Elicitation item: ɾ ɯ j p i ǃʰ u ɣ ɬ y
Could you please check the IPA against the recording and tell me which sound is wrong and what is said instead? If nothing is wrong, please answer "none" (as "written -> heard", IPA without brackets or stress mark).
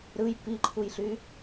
ɣ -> j